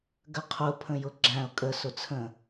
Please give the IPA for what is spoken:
ɡəqʰʊ pʰə̃jʊɡ͡ǁæ̃ʊ̯ kʼə sʊt͡sʰə̃

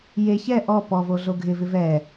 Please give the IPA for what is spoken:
je çɛ ʔɔ pɔvo ɮoɡʱɪvɪ vɛ

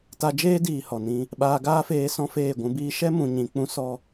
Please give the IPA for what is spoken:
ta˧d͡ʒeː˦diː˨ hɔ˨nĩ˧ | ɓaː˧ɡaː˦feː˧ sɔ̃˦feː˦˨ɡʷũ˧biː˦ ʃɛ˦mũ˨ɲĩ˨k͡pũ˧ sɔ˧

